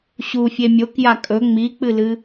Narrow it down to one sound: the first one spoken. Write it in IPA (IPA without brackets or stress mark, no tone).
ɕ